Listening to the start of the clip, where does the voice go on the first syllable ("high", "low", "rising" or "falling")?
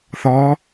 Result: rising